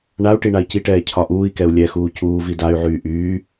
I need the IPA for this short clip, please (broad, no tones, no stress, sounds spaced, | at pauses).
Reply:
ɳ a u̯ ʈ i ɳ a i̯ c i ʈ ɛː cʰ ɒ ʔ uː i̯ k ɛ u̯ lʲ ɛ x uː c uː v i d a y̯ ʕ yː ʔ yː